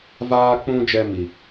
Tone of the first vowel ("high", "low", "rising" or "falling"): high